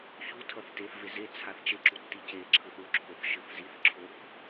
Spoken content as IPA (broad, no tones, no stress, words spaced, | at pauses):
çutʰʌθ teθve ze t͡sʰaθt͡ʃeǁu tːiceǁʰɯθ uǁʰoθ ʃɯθziθǁʰoθ